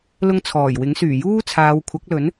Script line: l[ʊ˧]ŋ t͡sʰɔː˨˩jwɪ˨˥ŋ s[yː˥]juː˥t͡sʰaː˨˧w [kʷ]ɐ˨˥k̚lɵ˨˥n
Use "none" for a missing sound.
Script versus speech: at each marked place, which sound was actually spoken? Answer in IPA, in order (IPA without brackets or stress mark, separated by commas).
ʊ˨˧, yː˨˩, kʷʰ